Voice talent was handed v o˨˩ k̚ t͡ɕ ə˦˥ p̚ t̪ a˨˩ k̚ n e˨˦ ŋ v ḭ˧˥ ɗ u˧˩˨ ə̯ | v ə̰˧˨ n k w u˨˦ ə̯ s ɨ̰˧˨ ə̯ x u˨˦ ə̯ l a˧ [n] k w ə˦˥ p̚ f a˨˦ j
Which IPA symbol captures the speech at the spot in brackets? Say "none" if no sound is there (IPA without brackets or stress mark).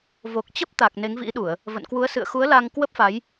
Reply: ŋ